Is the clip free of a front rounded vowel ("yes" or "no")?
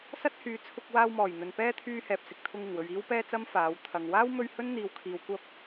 no